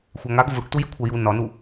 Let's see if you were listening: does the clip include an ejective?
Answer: no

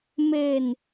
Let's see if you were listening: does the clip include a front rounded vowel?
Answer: no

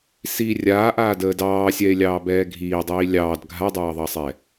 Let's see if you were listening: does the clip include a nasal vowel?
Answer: no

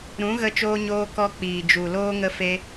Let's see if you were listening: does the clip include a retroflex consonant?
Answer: no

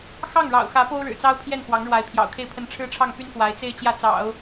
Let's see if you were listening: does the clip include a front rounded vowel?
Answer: yes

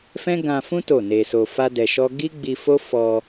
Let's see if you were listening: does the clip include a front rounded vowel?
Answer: no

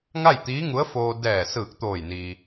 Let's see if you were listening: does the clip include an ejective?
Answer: no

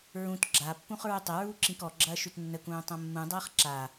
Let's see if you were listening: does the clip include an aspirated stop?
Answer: no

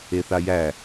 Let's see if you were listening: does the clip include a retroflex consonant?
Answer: no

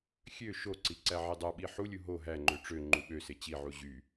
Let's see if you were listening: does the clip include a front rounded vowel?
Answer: yes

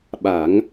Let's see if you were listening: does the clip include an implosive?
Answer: yes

